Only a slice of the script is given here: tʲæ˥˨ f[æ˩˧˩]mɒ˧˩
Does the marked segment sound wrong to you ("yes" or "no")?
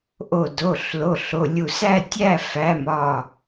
no